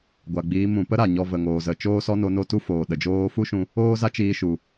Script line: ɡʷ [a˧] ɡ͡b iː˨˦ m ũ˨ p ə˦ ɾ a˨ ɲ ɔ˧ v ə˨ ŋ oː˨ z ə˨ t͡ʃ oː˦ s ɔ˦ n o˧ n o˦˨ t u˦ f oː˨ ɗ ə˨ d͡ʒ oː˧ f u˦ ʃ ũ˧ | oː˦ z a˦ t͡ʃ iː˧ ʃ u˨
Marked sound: incorrect: a˨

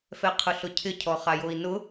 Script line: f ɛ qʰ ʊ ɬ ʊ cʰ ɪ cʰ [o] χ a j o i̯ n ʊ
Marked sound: incorrect: ɔ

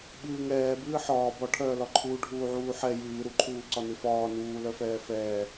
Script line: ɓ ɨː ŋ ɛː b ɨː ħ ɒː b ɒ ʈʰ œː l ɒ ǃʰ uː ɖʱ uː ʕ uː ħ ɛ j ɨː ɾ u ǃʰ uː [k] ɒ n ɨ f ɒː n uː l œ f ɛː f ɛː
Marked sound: incorrect: ǀ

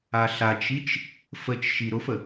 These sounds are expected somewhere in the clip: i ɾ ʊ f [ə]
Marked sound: correct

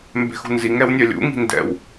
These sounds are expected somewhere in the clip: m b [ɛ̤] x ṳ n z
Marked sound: correct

